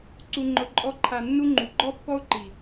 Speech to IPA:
ǀu˨ŋ͡ǃʊ˨ǃʼɔ˧ ǃʰa˨nːu˧ ŋ͡ǃu˨ɡ͡ǃɔ˦pːɔ˦ʊ̯ǃi˨

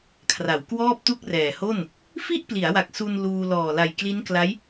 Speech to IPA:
kʰra˩˦wkwɔː˥˩p̚tu˥˩k̚ rɛː˨˩ho˥˩n | fi˥˩ʔpli˩˦a̯wa˨˩k̚ su˧n luː˧ lɔː˨˩la˨˩jkli˦˥nkla˦˥j

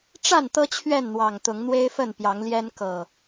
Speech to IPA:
ʈ͡ʂa˥˨n t̪ɤ˦ t͡ɕʰɥɛ˥˨nn̪wɑ˨˩ŋ t̪ʊ˨˦ŋn̪we˦ɪ̯fə˥˨n pjɑ˨˦ŋljɛ˦n kɤ˨˩

